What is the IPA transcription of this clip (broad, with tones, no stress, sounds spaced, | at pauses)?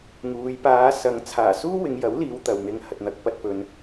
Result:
ŋ uː˨˧ j p aː˨˧ s ɐ˨ ŋ t͡sʰ aː˨˩ s uː˥ w ɪ˨˧ ŋ j ɐ˨˥ w l iː˨˧ w t̪ ɐ˨ w n̪ ɪ˧ ŋ h ɐ˨ t̚ n̪ ɐ˨˥ k̚ p ɐ˨ t̚ p ɵ˨ n